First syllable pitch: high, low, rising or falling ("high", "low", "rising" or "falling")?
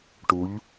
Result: rising